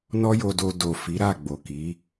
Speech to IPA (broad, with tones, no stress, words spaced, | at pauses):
nɔ˦jo˧do˧ do˨ fi˨˦ɾa˦˨ɡ͡bo˨ ki˨˦